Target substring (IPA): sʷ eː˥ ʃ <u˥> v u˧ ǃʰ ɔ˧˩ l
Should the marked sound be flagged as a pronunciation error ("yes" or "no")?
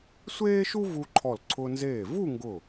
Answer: no